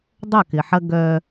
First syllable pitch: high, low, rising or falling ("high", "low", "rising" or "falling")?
falling